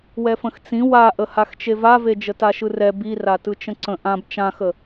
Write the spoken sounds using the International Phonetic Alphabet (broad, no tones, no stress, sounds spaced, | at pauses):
w ɛ f ə̃ x t͡s ĩ w a ʔ ə h a x t͡ʃ e v a v e d͡ʒ ə t a ʃ ɯ r ɛ b i r a t ɯ t͡ʃ ə̃ ǀ ə̃ ʔ ã b t͡ʃ ã x ə